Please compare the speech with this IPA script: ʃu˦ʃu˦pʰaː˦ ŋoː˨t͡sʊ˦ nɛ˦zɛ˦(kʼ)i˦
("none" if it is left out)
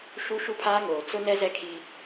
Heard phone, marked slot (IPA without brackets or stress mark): kʰ